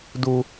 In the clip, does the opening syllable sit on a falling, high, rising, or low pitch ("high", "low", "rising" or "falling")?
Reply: high